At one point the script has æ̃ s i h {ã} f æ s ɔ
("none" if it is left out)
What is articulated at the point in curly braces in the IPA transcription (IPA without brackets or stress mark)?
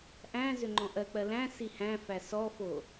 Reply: æ̃